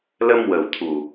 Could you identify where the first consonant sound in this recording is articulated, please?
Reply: alveolar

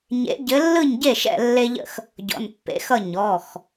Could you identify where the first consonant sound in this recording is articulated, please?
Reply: palatal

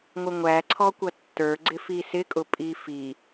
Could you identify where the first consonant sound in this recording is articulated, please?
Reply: velar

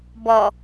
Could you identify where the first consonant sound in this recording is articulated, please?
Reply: labial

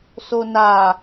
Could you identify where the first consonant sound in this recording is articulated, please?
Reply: alveolar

